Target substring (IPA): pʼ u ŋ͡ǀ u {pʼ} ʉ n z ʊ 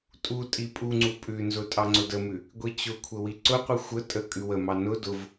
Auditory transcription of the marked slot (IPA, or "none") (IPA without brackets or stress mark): pʼ